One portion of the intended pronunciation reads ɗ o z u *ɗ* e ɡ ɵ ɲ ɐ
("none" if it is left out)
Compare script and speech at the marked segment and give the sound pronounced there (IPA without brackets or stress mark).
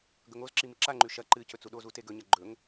t